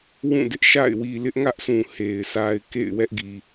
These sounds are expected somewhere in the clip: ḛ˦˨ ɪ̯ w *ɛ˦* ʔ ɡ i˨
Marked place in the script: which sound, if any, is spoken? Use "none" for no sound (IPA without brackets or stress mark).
ɛ˦